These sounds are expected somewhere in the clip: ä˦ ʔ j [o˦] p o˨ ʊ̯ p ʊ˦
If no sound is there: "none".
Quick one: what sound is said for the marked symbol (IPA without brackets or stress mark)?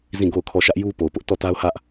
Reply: u˦